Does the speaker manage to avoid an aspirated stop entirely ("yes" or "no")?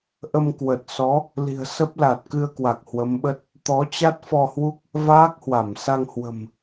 yes